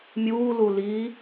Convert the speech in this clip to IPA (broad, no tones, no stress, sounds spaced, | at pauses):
mʲ uː l u l i